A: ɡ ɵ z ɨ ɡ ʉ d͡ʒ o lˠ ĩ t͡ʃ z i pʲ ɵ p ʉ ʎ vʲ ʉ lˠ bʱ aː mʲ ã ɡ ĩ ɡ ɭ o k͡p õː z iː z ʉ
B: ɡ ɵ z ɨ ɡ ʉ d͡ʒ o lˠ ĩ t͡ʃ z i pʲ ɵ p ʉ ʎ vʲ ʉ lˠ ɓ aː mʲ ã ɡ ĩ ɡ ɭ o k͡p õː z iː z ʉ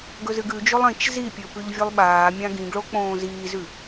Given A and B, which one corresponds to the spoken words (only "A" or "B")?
B